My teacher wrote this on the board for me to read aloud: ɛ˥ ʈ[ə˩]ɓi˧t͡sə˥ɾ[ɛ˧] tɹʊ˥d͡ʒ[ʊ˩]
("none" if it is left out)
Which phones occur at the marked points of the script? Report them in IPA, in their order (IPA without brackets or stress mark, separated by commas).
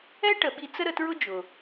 ə˩, ə˧, ʊ˩